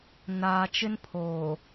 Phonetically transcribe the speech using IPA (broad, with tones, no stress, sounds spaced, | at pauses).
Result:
n aː˨ t͡ʃ ɪ˦ n pʰ oː˨